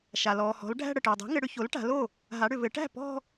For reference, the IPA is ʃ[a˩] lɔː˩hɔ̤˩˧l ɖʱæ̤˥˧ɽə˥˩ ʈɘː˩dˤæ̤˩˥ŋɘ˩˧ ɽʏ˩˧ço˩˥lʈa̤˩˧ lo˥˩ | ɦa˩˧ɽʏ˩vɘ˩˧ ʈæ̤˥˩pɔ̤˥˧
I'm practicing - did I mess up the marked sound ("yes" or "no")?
no